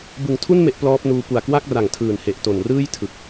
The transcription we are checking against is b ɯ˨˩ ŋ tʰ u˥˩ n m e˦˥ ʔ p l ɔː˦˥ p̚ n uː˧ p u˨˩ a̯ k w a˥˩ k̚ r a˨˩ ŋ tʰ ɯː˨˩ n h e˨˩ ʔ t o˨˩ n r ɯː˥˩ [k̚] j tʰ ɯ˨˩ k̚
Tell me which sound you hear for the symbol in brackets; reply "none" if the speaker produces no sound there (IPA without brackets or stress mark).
none